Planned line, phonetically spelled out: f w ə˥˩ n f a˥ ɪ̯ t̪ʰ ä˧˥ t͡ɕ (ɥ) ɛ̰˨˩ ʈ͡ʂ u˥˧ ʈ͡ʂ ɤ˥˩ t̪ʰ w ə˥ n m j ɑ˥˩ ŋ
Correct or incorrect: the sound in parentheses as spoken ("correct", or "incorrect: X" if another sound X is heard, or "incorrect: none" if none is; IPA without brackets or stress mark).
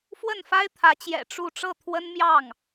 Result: incorrect: j